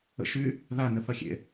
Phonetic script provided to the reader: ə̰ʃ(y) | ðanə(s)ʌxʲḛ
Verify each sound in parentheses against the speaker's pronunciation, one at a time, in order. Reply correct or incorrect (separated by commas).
correct, incorrect